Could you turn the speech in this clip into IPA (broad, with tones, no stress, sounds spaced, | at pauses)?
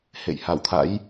h ḛ˧˨ j h a˧˩ w t̪ʰ a̰˧˥ j